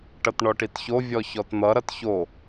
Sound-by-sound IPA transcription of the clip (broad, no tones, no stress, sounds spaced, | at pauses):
ʈ ʌ t ɳ ɔ ʈ i t ç o vʲ ɔ ç ɔ t n̪ ʌ ɾ ʌ t ç o